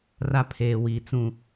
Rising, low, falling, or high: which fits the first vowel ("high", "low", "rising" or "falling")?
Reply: high